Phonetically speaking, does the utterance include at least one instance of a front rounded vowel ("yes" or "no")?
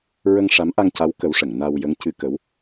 no